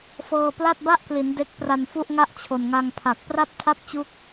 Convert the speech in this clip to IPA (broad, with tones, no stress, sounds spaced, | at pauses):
f ɤː˥˩ p l a˥˩ t̚ b a˥˩ ʔ k l i˩˦ n d e˦˥ k̚ p r a˧ n f u˥˩ ʔ ŋ a˥˩ ʔ t͡ɕʰ o˨˩ n ŋ a˧ ŋ pʰ a˨˩ k̚ p r a˥˩ p̚ tʰ a˥˩ p̚ t͡ɕ u˥˩ k̚